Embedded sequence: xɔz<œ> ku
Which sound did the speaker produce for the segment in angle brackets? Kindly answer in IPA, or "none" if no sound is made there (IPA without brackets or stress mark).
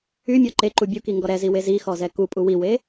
ɛ